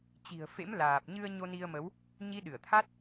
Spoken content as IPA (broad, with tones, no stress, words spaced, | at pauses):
t͡ɕi̤˨˩ə̯fḛ˧˥mlaː˨˩p̚ ɲɨ˧ə̯ ɲo˧ni˧ə̯mə˨˦w | ɲi˨˦ ɗɨ˧˩ə̯t̪ʰa˦˥t̚